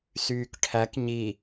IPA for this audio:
s yː k ʈʰ æ k ɲ i

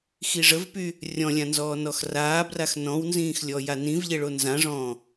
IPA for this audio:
x i ʐ ə v p y | rʲ ɔ̃ lʲ ã n z ɔː n ɔ x r aː b r a x n ɔ̃ w n z ĩː x lʲ ɔ j a n ĩ v ʎ e ɭ o n z ã ʐ ɔ̃ː

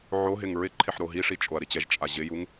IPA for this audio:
ʕ o ɦ ɪ ŋ ɹ ɪ ǃʰ ɪ ħ ɾ o ɦ i ʂ i t͡ʃʼ o ɐ̯ ɾ i t͡ɕ ɛ ʒ t͡ʃʼ a ʑ ɪ j u ŋ

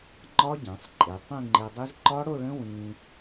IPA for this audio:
ŋ͡ǃ ɒ˦˥ ɟ ɛ̃˩˧ sˤ ǃʼ e˩˧ tˤ ĩ˥˧ ŋ͡ǃ e˧ dˤ i˦˥ z ǃ ɒ˦˥ ɽ o˥˧ ɭ ə̃˦˥ w ĩ˧

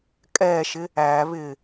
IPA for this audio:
kʼ ɛː ʃ ɪ | æː β ɪː

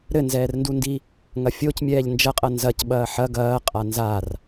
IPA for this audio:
ɾ ɘ n z ɛː r n d u n d i | ŋ ɐ fʲ o c mʲ ɛː ʎ n d͡ʒ ɐ qʼ ɐ n z ɐ c ɓ ɐː ħ ɐ ɡ ɐː qʼ a n z a r

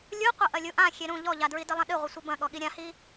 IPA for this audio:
lʲ u qʷ ɐ ʔ ɐ lʲ u ʔ ã xʲ e ɾ ũ ʎ ɔ ʎ a d ɹ i d ɘ lˠ ɐ̃ ɗ ɨ ʁʷ ɘ sʷ ɘ b ɐ̃ ɠ ɔ ɠ i ɾʲ ã h i

